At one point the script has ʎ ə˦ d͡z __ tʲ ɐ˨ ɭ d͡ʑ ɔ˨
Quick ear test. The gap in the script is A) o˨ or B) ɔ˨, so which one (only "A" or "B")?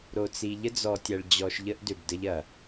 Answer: B